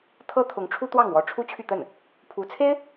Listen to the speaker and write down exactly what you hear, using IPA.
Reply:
t̪ʰɤ˥t̪ʰʊ˧˥ŋʈ͡ʂʰu˥ t̪wɑ˥˩ŋ wɔ˧˥ʈ͡ʂʰu˥t͡ɕʰy˥˧t̪ə˥˩n | pʰu˧˥t͡sʰe˥ɪ̯

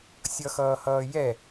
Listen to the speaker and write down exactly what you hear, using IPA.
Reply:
sʲʌxʌːhʌːjɛ

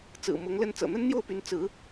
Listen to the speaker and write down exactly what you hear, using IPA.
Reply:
t͡sɹ̩˨˩mʊ˧˥ŋlə˥˩n t͡sɤ̰˨˩n̪ə˥nn̪jo˥˩ʊ̯py˧˥n t͡sɹ̩˧˥

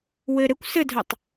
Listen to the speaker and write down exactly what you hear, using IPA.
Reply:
wɘ ɾɘkʷ sɘdʱœtˤ

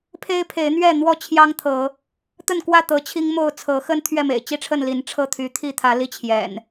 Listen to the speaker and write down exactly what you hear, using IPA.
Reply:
pʰe˦ɪ̯pʰe˨˦ɪ̯n̪ɥɛ˥˨n̪wɔ˥˨ t͡ɕʰjɑ˦ŋt̪ʰɤ˨˦ | t̪ə˥˨nkwä˥˨ t̪ɤ˨˦t͡ɕʰi˦ŋmo˥˨ʊ̯ t͡sʰɤ˨˦xə˦n t̪ʰɥɛ˥˨mḛ˨˩ɪ̯t͡ɕi˦ʈ͡ʂʰə˥˨n li˨˦nʈ͡ʂʰɤ˥˨ t̪ʰy˨˦t̪ʰi˥˨t̪ʰä˨˦ li˥˨t͡ɕʰjɛ̰˨˩n

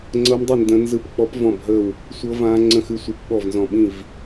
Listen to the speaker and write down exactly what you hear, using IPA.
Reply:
ŋ͡ǀɤ˦˥mdˤi˥˨ ndə̃˦˥nzɯ˥˨p k͡pɔ˦˥pvɔ̃˥˨bɦə˥˨w | sʷɤ˦˥vã˦˥ ŋ͡ǀə̃˥˨xɨ˥˨sʷɯ˦˥p ɓɔ˥˨vnzɔ̃˥˨ ɓĩ˥˨v

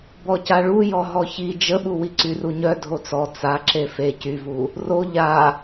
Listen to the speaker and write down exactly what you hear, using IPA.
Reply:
bɔcaɭujɔ ɦɔçi d͡ʒəɓuwi ǀyruɲœ dʱot͡sɔ t͡sa ǁefe cyvu | ro ʎa

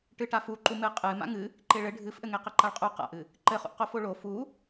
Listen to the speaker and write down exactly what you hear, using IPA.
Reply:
ʈɨʈafu ǃumɨqʼɨ ma̰ŋɨ | ǃeɭɘ ɖʱɨfʔɘŋe qɘǃaɭqʼu qa̰ʔɨ | ǃɘχṵʔqo foɭo fu

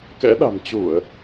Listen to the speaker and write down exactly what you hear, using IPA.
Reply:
kɛ̰˧˥ɗa̤˨˩m t͡ɕu˧˩˨ə̯

